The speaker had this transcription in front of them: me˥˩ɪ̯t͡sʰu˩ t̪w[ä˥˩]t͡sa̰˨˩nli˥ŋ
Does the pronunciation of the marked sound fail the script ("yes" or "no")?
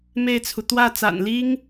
no